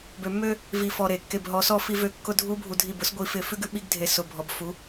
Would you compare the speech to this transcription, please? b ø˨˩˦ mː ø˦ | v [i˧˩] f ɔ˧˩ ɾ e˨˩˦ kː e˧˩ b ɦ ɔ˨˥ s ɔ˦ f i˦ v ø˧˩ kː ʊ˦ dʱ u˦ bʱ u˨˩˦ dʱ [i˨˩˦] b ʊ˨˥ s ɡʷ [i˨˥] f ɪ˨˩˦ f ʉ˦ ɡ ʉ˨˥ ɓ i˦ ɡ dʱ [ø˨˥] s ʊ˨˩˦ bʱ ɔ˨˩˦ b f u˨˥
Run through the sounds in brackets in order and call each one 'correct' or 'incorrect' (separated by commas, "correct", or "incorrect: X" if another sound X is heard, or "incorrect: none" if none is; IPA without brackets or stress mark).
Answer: correct, incorrect: i˧˩, correct, incorrect: e˨˥